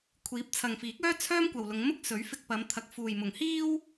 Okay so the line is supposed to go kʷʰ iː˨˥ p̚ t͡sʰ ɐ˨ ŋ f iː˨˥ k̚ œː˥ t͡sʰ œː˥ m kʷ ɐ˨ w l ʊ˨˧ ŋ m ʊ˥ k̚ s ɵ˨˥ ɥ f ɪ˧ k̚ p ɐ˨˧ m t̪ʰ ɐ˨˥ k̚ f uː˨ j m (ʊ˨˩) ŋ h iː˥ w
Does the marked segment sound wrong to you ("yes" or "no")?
yes